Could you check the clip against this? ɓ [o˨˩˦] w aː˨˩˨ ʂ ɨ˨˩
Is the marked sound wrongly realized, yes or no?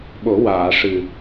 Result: no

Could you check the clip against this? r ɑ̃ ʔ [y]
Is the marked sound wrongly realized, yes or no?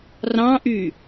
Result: no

